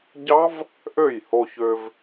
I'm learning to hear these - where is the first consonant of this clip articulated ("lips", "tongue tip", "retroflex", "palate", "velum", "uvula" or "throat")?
palate